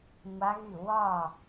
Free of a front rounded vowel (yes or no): no